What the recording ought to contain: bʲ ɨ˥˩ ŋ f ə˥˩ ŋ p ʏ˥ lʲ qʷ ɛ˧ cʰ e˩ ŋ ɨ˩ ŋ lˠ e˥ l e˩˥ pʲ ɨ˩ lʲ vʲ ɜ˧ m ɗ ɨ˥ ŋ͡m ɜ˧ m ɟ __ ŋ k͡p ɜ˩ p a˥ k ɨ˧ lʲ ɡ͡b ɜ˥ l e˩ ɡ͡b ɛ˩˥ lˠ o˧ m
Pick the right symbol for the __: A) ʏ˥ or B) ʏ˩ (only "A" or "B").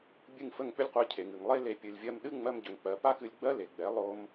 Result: B